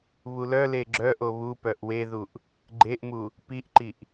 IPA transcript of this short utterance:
βulœle ɡ͡ǁœʔo βu pœʔweðuʔ | ɡ͡ǃeʔmu | piʔǃiʔ

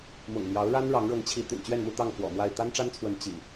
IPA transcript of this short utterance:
mʊ̰˨˩ŋmjɑ˨˦ʊ̯ɻa˦n ɻɑ˨˦ŋɻɤ˨˦ŋt͡ɕʰi˨˦ t̪y̰˨˩nt͡ɕɥɛ˥˨nmu˥˨t̪ɑ˥˨ŋ fwɔ̰˨˩mwa˥˨ɪ̯ t̪a˦nʈ͡ʂa˦nt͡sʰwə˨˦n t͡ɕḭ˨˩

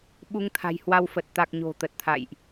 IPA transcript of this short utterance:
ɓu˧ŋt̪ʰa̤˨˩jhwa˧wfə˨˩t̚ t̪a˨˩k̚ ɲo̤˨˩t̪ə˨˩t̚t̪ʰa̰˧˨jʔ

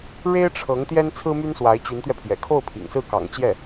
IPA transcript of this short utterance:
ɻe˥ɪ̯ʈ͡ʂʰɤ˧˥ŋ t̪jɛ˥nt͡sʰɹ̩˥my˥nswa˧˥ɪ̯ t͡ɕy˧˥nt̪ɥɛ˧pʰjɛ̰˨˩ kʰo˥˩ʊ̯pʰḭ˨˩ŋsɹ̩˥˩ kɑ̰˨˩ŋt͡ɕjɛ˥˩

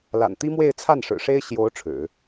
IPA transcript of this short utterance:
la̰˨˩nt̪i˥mwe˥˧ɪ̯ t͡sʰa˥˩nʂɻ̩˨˩ʂe˥ɪ̯ ɕjo˧˥ʊ̯ ʈ͡ʂʰɻ̩˨˩˦

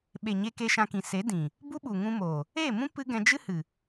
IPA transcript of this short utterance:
ɓe˨ɲe˧ke˧ ʃã˧kĩ˨ se˨˦dĩ˨ | bu˦ɓu˨ŋũ˧moː˨ | eː˦˨mũ˦ pɨ˦ ɡɛ̃˧d͡ʒɨ˦hɨ˨

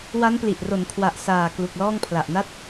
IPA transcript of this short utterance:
wa˦˥npli˨˩ʔro˩˦n kʰwa˨˩ʔ saː˨˩ klu˨˩k̚lɔː˥˩ŋ pʰla˨˩ʔna˥˩t̚

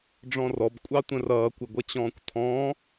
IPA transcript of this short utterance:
ɖ͡ʐɔ̃rɔb kʷʼɑtʷə̃rʌː kʷɪɡʷʌt͡ɕɔ̃ːkʷtʰɔ̃ː

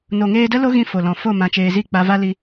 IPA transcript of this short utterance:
no˨ŋeː˧də˦ lo˦ɣĩ˧ fo˨lɔ̃˨ fo˦˨mã˨t͡ʃeː˨zi˦˨ k͡pa˧va˦li˧

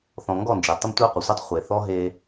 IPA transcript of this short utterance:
θɔ̃˨ŋɡɔ˦˨nd͡ʒɛ˨ tˤə˦mtʷa˦qʷɯ˨sʷe˦tˤ χʷe˨θɔ˦ ɦe˦

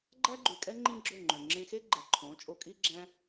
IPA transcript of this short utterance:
ɡ͡ǃæ˦ɡ͡ǃʉ˨kʼɛ˦ ŋ͡ǃĩ˦ɡ͡ǁɵ˦˨ŋ͡ǃœ̃˨ ŋ͡ǁẽ˧xe˦ ɡ͡ǃɛ˨ǃʰõ˨˦ t͡ʃʼo˧kʼi˦ɡ͡ǁæ̃˦

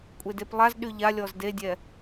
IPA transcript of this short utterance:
kʷʼedeplˠaz ɗyʎa lʲɔzdedʲɛ

